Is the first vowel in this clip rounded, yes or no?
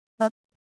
no